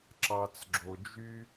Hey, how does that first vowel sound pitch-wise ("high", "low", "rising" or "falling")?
low